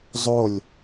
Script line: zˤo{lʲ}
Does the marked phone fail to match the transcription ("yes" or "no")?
no